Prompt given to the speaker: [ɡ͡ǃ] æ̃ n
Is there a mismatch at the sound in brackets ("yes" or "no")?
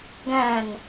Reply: yes